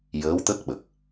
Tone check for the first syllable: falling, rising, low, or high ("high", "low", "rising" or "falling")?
rising